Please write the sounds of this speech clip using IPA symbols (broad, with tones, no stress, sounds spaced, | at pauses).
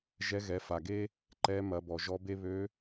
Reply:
ʒ ɛ˧˥ ɣ ɛ˩˧ f a˩ ɡ e˥ | ǃ ɛ˧˥ m ɐ˩˧ b ɔ˩ ʒ ɔ˧˥ b e˥ β ø˧˥